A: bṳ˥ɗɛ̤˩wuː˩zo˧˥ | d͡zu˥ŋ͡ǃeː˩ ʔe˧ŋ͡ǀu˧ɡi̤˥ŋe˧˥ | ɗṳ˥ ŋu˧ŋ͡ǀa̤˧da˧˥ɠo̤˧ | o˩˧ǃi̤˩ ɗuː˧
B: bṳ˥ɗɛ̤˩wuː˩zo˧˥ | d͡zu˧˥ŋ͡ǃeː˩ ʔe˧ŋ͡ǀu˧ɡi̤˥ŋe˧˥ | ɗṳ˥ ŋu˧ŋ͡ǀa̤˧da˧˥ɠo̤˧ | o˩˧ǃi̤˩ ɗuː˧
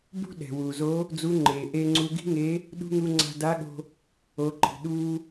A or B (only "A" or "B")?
B